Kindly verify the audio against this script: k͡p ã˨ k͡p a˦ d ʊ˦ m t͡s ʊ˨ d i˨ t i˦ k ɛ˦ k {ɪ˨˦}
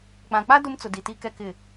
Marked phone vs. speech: incorrect: ɪ˦˨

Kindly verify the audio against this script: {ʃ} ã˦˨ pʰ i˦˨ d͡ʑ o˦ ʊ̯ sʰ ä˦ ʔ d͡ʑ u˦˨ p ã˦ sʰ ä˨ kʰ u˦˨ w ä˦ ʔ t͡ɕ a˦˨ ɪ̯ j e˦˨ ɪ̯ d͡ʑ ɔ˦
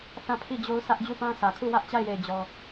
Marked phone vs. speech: incorrect: θ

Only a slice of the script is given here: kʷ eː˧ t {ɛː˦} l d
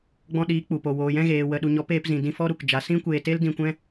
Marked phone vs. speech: incorrect: eː˦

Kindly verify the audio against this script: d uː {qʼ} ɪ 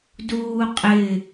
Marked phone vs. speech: correct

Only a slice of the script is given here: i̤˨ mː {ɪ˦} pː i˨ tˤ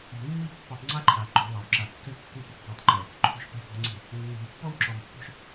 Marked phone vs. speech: incorrect: i˦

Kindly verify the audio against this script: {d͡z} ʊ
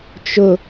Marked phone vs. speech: incorrect: t͡ʃ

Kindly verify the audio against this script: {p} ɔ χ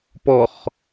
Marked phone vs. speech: correct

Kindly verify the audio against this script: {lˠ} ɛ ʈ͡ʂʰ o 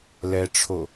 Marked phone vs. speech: incorrect: l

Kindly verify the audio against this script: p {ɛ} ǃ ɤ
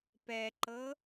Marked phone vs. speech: correct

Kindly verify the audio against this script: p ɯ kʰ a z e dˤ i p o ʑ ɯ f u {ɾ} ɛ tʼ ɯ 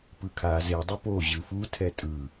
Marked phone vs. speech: incorrect: tʰ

